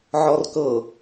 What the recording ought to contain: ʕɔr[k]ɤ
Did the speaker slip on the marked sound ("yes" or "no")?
no